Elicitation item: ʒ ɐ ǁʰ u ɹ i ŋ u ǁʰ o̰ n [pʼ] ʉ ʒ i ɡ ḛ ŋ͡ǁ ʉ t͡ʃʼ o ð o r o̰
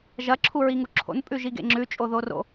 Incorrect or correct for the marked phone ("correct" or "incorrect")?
correct